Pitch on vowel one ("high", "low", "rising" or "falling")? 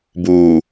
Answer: low